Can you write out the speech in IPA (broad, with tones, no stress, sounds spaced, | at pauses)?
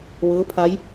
ʋ ɤː˧˥ pʰ a˧˥ j